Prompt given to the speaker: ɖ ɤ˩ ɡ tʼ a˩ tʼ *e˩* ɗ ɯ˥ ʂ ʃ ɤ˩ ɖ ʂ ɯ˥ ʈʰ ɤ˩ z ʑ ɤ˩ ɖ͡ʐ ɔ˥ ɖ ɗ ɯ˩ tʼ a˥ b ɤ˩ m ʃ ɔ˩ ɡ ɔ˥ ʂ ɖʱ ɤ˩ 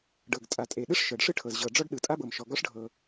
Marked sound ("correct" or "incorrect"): correct